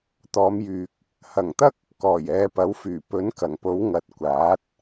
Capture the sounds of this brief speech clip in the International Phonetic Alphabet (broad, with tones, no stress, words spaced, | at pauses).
t̪ɔː˨˧mjyː˨k̚ | hɐ˨˩ŋt̪ɐ˥k̚ | kɔː˨˩jɛː˨˧pɐ˨˥w fyː˨˩pɵ˨˥n kɐ˨˩ŋpo˨˥wŋɐ˨˥t̚ kʷaː˨˥t̚